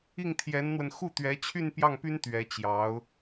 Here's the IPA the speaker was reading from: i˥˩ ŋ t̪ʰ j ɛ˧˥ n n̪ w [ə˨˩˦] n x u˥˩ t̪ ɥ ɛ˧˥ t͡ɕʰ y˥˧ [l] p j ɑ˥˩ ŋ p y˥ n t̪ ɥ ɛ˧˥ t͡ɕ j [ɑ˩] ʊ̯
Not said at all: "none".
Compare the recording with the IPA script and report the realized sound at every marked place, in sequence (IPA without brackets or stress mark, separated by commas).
ə˧, n, ɑ˧˥